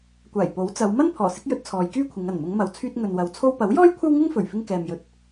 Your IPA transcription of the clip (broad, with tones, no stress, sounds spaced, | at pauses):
kʷ aː˨˩ j p o˨˥ w t͡s ɐ˨˧ w m ɐ˥ n pʰ ɔː˨˩ s ɪ˨˥ k̚ j ɵ˧ t̚ t͡sʰ ɔː˨˧ j k yː˥ kʷʰ ɪ˨˧ ŋ ɐ˨˩ n m ʊ˨˧ ŋ m ɐ˨˧ w t͡sʰ yː˧ t̚ ŋ ɵ˨ n w ɐ˨ w t͡sʰ o˧ w p ɐ˨˥ w j ɔː˥ j kʷʰ ɐ˥ w ŋ ɪ˥ ŋ f ɵ˨˩ ɥ f ɪ˧ ŋ k ɛː˨ m j ɵ˨ t̚